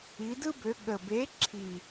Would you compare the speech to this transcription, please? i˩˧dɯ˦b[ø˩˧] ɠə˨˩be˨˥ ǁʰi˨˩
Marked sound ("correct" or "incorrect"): correct